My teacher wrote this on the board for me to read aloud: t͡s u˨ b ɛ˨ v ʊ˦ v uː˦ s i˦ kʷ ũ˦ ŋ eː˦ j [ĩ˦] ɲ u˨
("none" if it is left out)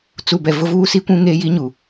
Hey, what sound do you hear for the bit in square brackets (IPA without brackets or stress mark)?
i˦